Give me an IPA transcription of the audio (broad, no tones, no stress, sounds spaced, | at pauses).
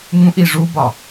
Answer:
ŋ ũ ʔ i ʐ u b ɒ